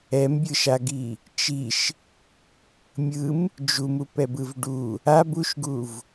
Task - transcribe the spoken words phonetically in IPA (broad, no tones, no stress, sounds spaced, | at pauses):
ɛ m bʲ ɯ ʃ a ɡ i | t͡ʃ i ʃ | mʲ ɯ m | d͡ʒ u m u p ɛ b ɯ v ɖ u | a b u ʃ ɡ u v